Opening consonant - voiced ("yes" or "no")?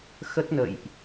no